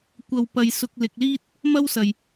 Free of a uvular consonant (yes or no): yes